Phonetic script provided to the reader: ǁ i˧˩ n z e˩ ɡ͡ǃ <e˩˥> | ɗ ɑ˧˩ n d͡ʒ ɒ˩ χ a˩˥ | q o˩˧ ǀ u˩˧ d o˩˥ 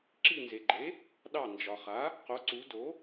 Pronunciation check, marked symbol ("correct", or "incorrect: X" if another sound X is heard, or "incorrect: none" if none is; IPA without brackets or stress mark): correct